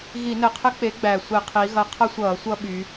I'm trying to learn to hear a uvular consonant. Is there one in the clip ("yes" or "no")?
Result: yes